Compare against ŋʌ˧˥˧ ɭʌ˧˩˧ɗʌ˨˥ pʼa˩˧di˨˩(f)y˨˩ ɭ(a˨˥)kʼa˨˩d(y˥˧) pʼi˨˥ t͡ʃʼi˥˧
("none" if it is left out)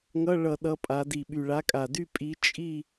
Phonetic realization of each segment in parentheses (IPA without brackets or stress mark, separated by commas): ɓ, a˨˥, y˥˧